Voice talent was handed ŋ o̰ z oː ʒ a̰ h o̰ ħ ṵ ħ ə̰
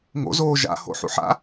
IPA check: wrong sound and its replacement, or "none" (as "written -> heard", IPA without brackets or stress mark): ə̰ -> a̰